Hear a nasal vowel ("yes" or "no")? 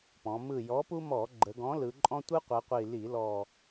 yes